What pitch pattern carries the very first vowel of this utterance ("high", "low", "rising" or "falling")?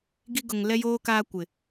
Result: high